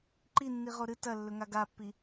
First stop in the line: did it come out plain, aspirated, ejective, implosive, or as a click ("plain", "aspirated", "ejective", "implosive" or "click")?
click